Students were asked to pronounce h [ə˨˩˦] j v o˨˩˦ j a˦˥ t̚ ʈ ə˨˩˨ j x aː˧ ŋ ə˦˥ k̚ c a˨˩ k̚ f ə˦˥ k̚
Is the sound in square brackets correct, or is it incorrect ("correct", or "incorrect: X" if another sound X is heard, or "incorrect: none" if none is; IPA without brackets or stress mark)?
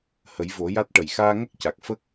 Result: correct